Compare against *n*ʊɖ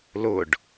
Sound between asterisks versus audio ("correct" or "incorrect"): incorrect